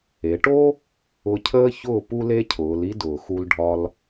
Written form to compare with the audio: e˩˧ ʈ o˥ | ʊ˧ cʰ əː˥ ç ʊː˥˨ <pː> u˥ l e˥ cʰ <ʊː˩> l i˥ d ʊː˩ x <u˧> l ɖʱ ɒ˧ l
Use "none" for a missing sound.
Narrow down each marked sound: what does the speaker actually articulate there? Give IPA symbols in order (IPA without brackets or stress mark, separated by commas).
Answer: p, ʊː˩˧, u˧